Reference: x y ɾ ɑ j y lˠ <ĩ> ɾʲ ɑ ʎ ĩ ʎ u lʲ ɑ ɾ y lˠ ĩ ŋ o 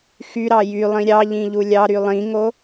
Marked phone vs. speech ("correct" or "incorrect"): correct